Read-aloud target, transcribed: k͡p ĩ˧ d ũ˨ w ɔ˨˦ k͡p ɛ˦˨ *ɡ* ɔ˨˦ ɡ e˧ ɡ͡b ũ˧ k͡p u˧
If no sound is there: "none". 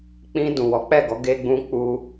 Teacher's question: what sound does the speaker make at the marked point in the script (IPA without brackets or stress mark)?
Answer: ɡ